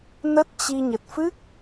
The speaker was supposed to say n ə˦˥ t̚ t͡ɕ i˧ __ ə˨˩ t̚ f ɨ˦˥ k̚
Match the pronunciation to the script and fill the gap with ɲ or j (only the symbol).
ɲ